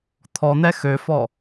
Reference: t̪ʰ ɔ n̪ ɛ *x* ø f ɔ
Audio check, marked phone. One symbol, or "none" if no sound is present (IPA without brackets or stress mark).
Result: x